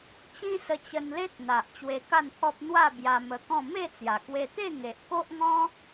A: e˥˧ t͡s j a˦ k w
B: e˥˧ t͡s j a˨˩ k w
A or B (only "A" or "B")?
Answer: B